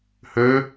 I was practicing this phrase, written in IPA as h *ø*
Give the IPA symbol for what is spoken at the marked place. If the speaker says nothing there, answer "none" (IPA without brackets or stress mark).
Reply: ø